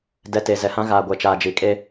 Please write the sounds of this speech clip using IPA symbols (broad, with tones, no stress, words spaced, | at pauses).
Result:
dɛ˨ te˨zɛ˨hã˦ ɣaː˨ ɡʷɛ˨t͡ʃaː˨d͡ʒi˨kʼe˦